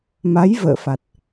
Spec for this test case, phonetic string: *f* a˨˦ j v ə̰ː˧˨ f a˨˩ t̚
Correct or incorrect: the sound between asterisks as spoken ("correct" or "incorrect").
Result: incorrect